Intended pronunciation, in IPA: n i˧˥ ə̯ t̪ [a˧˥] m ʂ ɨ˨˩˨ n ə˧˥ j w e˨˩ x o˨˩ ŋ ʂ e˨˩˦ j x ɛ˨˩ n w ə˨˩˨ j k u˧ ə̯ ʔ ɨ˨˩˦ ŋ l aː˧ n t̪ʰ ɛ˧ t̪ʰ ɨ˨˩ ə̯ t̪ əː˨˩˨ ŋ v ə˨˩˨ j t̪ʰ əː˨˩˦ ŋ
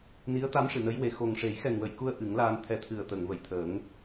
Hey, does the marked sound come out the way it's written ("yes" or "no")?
yes